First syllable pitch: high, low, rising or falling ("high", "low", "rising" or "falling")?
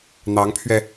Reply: rising